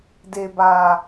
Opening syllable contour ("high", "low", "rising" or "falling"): low